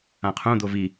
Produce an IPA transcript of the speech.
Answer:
ã qʰ ũ d̪ o v i

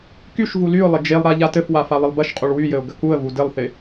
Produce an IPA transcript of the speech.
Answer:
k y ʃ v u l y ʊ̯ lˠ ɪ d͡ʒ e lˠ ɾ a ʎ a t ɘ f w a f a lˠ ɪ lˠ b ɐ ʃ qʼ u ɭ w y j ɘ ʊ̯ ɡ ɐ k u ə̯ v u d ɘ lˠ θ ɪ

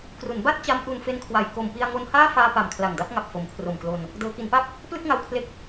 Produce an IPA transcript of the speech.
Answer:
k r u˩˦ n b a˥˩ t̚ t͡ɕ a˦˥ m ʔ u˧ n f e˦˥ n kʰ w a˨˩ j k o˨˩ m p i˧ a̯ ŋ o˧ n h aː˥˩ f aː˧ p a˨˩ m kʰ l a˨˩ ŋ d a˥˩ p̚ ŋ a˨˩ p̚ f o˩˦ m kʰ r o˨˩ m k l o˧ n | d ɤː˩˦ k i˩˦ n p a˥˩ p̚ | p l ɯ˥˩ k̚ ŋ a˧ w kʰ l e˦˥ k̚

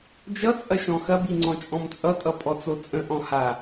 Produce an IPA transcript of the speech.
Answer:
d͡ʒ ʌ t͡sʼ ɐ ʃ ɔ̃ x ɐ b i ŋ͡ǀ ɔ̃ t͡ʃʼ ɔ̃ m t͡sʼ ʌ tʼ ʌ pʼ ɔ t͡s o t͡sʼ ə̃ ʔ ɔ̃ h a

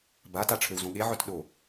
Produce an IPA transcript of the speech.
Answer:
b a t a ʈ͡ʂʰ ø w z õ ɠ e ʕ œ t ɗ o

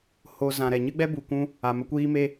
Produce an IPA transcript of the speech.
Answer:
h o˨ z ã˨ ɾ ɛ˨ ɲ ɨ˦ ɡ͡b ɛ˦ b u˨ kʷ ũ˧ | a˨ m ə˧ kʷ iː˦ m e˦

